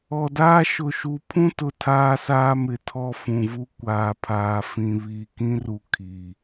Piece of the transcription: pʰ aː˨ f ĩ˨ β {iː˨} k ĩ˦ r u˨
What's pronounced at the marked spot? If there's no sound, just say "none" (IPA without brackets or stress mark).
iː˨